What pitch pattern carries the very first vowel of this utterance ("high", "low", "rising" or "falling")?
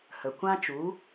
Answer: low